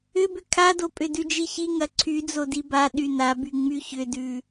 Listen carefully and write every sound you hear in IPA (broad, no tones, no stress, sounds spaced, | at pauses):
ʏ b ʏ kʰ a d o pʼ ʏ d ʉ d͡ʒ i ç i ŋ ɐ ǀʰ y d͡z o d i b a ɗ y n a b y ŋ͡m y ç ʏ d ʉ